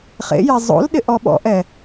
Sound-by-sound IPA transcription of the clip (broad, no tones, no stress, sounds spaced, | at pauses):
χ ḛ j ɛ zˤ o̰ l ɗ ɪ ʔ ɔ ɓ ɔ̰ ʔ ɛ